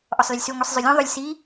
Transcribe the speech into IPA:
ʔɔsˤləlʲsʉ ŋʷisˤzˤʉlʲõ ðˤʊlʲ si

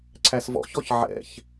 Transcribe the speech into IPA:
ǀʰæsvɔ̰çɔç ʕɛ̰ç

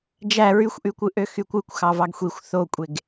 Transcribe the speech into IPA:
d͡ʒæ ɹyxʷʔykʷɯʔø xykʷɯkʷ xɑvɑɡxʷixʷ θokʷʼeɡ

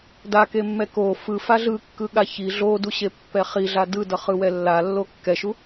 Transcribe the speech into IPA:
dakemːɛ ko fɯfa ɮɯkːɯɠa çi ɮoduɕepːɛ χiɮa dɯdʌχɯwɛ lːalːo kːɛʃu

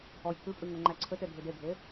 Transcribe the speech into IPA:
ɔjkʰʉpʼʉ ŋoŋ͡ǃæǀʰøte dʱʉdeɡʱe

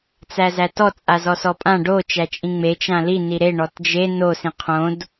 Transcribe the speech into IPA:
t͡sæzætɔ t͡sʼazɔsɔpʼã ɖo t͡ʃæt͡ʃʼĩŋ͡me t͡ʃãli niɾe ɳɔtd͡ʒe no sĩqʰõd

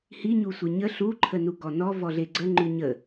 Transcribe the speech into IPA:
hiɲusʷi ɲə ɬuǃʰə nuɡɔnɔ vɔɮeɡ͡ǀə ŋ͡ǃʉɲə

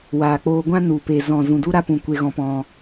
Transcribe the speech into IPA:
waː˨k͡poː˧ɡʷã˦ nu˨pe˨zɔ̃˨ zũ˨du˦ɾa˦pũ˨ kʷe˧ɣɔ̃˧p ɔ̃˦

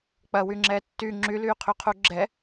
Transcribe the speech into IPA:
k͡pɐwyŋ͡ǁɛː tːy ŋ͡ǁylyːqʰyqʰu ɡ͡ǁɛ

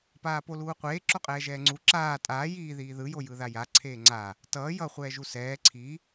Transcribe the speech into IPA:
paːpoluːqʷeː ǁoqʼɛːʒɛːŋ͡ǀu ǁaː tʼaː jiː ðiːðɯ jojɯðaja ǀʰeːŋ͡ǀa | tʌː jʌ χʷɛːʒusɛː ǀʰi

